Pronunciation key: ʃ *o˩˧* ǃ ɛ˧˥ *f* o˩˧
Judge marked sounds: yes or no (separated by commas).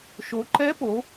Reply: yes, no